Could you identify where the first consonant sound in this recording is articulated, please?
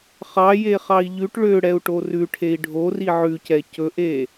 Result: uvular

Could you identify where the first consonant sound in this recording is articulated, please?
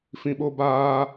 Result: labial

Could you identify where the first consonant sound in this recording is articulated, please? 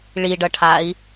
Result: retroflex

